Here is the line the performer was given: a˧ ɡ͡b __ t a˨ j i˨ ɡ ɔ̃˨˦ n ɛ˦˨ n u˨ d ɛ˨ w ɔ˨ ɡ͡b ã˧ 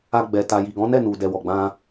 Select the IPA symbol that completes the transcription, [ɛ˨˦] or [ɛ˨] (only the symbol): ɛ˨